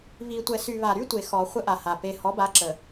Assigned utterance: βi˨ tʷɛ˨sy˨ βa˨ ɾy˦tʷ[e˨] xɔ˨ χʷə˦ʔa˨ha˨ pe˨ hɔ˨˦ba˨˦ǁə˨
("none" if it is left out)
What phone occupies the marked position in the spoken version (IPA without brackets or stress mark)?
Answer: e˨